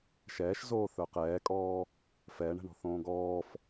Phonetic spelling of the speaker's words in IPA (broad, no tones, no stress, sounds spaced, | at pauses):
ʃ ɛː ʃ z oː θ œ q ɛː kʼ ɔː | f ɛː ɳ ɛ̤ ɳ ɔ̤ θ õː ɡ ɔː f